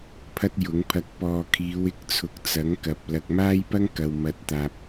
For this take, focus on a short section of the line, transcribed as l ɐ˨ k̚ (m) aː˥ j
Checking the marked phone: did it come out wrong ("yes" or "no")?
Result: no